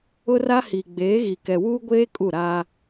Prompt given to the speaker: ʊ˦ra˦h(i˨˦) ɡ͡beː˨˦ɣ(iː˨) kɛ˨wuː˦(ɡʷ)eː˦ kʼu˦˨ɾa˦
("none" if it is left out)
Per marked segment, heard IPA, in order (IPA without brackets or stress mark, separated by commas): i˨, i˨, ɡʷ